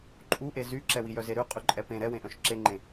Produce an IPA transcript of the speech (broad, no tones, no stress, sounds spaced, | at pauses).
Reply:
ǃʼ u ʔ e z y ǁ ɛ w i j œ z e ɾ ʉ qʼ ʉ ǃʼ ɛ p ẽ ɾ ɛ w ẽ ʔ œ̃ ʃ ǁ e ŋ͡ǃ ẽ